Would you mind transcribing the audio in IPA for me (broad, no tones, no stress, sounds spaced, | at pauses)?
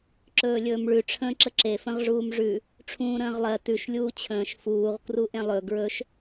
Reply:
ǁ ɵː lʲ ɵː m ɭ ʉ ʈ͡ʂʰ ə̃ː ǁ ə ǁ e f ə̃ ʁ ʐ uː m ʐ ʉ | ʈ͡ʂʰ ũː ɾ ə̃ː ʁ lˠ ɜ t ʉ ʃ lʲ uː t͡ɕʰ ə̃ː ʃ f uː ʁ k r u ʔ ẽ lˠ ɵ ɡ ɹ ɵ ʃ